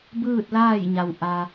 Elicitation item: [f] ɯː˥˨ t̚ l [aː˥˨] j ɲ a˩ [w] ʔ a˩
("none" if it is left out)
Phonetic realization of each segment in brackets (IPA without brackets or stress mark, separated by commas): b, aː˥˨, w